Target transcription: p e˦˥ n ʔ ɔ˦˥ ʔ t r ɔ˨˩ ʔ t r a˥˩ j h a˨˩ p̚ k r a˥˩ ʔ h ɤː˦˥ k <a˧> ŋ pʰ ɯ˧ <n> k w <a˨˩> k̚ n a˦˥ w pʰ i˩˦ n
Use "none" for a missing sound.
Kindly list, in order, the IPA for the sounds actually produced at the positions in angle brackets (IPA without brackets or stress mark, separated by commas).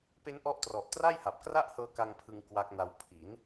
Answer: a˧, ŋ, a˦˥